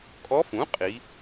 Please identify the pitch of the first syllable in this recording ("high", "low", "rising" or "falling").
rising